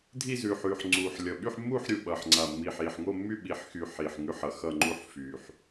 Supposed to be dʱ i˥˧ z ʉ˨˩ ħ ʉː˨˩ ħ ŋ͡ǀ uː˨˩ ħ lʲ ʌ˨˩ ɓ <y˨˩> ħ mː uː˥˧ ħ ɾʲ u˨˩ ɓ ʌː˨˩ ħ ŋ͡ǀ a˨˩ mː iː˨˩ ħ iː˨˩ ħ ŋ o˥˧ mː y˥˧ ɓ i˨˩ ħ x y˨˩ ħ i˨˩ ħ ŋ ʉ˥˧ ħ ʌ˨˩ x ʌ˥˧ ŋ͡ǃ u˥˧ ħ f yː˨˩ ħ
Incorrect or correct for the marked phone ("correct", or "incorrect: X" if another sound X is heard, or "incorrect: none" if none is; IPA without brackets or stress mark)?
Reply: incorrect: y˥˧